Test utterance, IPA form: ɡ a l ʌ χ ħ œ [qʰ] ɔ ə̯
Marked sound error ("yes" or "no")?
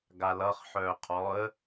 no